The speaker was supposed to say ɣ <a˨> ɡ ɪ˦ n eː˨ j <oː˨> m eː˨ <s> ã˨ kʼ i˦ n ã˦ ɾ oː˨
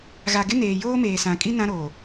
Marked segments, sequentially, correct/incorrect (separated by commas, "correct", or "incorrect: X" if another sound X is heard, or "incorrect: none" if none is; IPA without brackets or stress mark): correct, incorrect: oː˦, correct